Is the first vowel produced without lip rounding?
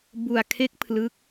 no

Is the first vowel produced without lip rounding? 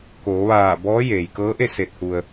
no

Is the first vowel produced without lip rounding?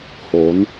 no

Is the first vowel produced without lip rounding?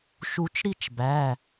no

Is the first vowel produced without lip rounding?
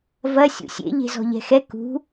yes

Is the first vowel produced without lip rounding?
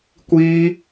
yes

